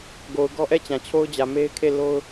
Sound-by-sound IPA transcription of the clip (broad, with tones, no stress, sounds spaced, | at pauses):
ɡ o˨ ʊ̯ ɡ ɔ˦ ʔ ɛ˦˨ t͡ɕ ã˨ t͡ɕʰ o˦ ʊ̯ d͡ʑ ä˨ m e˦ ɪ̯ kʰ e˦˨ l o˦ ʊ̯